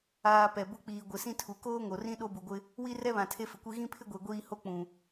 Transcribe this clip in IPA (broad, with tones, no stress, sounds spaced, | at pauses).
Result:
aː˨ p ɛ˨ b ʊ˦ k͡p iː˨ ɡʷ ɪ˨ s ĩ˦ tʰ u˨ k oː˦ ŋ o˨ r ĩ˦ ɗ o˦ b u˨ ɡʷ ɪ˦ | w i˦ r ɛ˦ β ã˨ tʰ e˦ f ɪ˨ kʷ i˦ ɣ ĩ˦ pʰ ɪ˦ ɡʷ e˨ ɡʷ iː˦ h o˦ k͡p ũ˨